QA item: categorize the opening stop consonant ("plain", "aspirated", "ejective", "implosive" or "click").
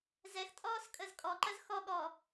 ejective